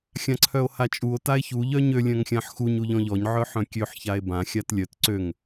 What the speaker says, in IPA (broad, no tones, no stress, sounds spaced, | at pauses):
xʲ ã ǀʰ œ o̯ h a t͡ʃʼ u o̯ t a e̯ ç u ʎ œ ɲ ø lʲ œ̃ ŋ xʲ ã ħ x u ɲ u ʎ ɔ̃ ʎ ɔ ɲ ʕ œ ħ œ̃ kʲ ø ħ ç a e̯ b ã xʲ a t lʲ œ t ǀ ø ŋ